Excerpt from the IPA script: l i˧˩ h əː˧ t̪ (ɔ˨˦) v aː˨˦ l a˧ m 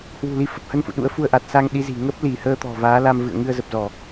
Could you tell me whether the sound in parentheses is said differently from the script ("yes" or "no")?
yes